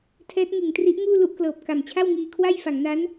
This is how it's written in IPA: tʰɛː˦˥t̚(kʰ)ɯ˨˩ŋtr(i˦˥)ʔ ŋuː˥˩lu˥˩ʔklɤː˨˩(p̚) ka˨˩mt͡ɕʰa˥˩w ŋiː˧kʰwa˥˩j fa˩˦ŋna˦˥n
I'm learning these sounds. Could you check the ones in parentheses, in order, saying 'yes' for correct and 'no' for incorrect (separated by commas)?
no, yes, yes